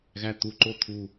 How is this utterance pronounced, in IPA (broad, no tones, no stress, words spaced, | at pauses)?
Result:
ɣæt̪uǃo t̪ʰu